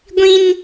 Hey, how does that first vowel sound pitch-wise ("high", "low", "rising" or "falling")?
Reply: high